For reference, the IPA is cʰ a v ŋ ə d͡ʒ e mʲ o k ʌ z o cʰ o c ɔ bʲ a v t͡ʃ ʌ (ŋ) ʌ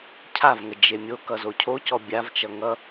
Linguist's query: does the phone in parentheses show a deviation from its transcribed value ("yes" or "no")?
no